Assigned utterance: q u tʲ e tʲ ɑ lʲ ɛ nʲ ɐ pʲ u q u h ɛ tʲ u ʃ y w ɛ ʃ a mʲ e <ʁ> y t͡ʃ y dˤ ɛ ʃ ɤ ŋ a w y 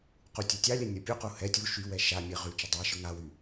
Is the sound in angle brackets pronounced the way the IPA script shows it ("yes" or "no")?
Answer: yes